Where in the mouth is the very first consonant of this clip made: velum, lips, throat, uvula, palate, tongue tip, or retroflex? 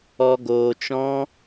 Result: velum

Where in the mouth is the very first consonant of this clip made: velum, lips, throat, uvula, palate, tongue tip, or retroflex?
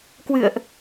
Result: velum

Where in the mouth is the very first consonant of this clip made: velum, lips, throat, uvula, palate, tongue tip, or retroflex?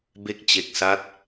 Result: lips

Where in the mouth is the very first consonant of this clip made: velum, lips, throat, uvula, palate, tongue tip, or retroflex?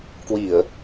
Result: velum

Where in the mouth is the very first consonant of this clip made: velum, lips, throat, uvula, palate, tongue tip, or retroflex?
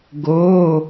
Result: velum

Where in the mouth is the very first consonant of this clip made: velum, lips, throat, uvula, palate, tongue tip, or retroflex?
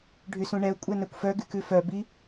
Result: retroflex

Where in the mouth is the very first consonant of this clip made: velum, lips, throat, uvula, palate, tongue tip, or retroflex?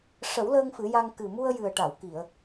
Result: retroflex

